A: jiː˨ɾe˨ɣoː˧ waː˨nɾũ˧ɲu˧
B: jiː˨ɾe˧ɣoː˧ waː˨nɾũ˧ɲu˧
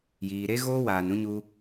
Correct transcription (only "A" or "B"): B